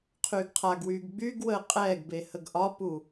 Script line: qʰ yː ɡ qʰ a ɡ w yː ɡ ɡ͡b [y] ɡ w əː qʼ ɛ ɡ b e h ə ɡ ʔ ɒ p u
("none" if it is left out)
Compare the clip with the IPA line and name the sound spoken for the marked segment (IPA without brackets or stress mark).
y